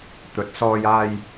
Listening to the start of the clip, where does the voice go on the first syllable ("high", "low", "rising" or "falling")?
rising